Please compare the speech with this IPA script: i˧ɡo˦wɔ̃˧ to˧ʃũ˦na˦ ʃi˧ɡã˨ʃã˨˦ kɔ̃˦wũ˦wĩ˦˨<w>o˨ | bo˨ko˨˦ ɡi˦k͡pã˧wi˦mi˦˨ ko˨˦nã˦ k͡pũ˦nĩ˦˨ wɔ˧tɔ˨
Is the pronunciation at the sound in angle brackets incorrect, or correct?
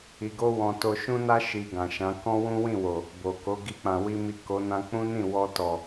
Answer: correct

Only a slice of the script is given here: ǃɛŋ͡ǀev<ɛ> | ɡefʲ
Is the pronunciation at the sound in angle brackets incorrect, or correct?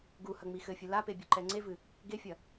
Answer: incorrect: ɨ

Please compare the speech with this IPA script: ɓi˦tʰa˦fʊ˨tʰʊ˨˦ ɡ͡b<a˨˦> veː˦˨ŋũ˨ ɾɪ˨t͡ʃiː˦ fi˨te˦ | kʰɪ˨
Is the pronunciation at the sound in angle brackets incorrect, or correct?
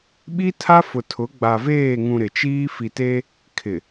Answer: incorrect: a˨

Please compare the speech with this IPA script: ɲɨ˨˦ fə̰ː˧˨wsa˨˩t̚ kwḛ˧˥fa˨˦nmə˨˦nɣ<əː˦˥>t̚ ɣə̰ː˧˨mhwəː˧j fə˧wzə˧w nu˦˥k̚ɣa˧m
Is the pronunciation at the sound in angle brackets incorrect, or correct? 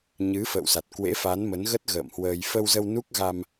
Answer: incorrect: ə˦˥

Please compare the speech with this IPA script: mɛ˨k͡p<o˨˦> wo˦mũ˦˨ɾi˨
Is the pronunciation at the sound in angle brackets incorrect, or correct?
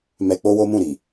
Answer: incorrect: o˧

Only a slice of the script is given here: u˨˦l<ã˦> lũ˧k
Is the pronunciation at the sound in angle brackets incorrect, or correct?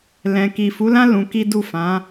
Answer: correct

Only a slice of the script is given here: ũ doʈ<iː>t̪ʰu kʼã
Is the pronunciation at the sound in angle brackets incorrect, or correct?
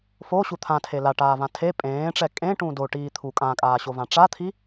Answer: correct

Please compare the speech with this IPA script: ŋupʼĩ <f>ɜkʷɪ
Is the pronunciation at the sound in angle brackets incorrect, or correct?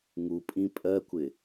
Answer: incorrect: pʼ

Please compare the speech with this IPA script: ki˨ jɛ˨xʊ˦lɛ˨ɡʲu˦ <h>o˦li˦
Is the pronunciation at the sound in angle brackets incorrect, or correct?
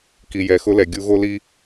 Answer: incorrect: ɣ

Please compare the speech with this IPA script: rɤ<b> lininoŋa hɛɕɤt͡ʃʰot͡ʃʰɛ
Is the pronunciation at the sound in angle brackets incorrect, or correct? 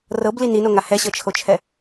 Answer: correct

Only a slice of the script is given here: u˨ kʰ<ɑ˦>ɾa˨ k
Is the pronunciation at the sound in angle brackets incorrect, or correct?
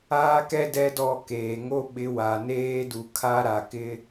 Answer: incorrect: a˦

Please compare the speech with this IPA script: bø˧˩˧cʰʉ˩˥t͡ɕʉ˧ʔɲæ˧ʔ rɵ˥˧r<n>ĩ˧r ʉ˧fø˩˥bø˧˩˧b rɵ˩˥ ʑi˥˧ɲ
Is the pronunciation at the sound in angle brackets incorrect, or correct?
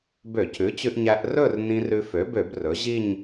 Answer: correct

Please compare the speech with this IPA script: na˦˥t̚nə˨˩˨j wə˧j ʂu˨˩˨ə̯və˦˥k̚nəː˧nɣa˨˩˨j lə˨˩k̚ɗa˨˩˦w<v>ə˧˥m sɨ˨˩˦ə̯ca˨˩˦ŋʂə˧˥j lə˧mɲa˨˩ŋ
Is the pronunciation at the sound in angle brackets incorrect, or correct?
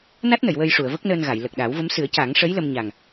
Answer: correct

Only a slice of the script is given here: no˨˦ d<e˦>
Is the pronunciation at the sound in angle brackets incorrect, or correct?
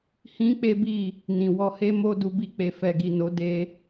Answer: correct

